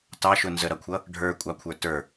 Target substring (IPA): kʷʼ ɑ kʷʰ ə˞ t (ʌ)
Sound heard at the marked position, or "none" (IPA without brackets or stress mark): ə˞